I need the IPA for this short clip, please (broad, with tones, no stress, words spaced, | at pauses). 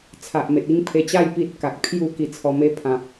t͡sʰa˨ʔme˨t̚i˥˧ŋ pʰe˧t͡ɕa˥˧j pi˦t̚ka˨k̚ pʰju˦ ki˨˩ t͡sʰɔ˨˩me˧ pʰã˨p̚